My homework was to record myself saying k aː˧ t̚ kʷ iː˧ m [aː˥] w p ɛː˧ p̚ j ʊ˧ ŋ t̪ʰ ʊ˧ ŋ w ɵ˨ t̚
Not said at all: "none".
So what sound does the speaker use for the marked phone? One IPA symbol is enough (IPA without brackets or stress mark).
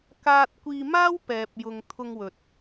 aː˥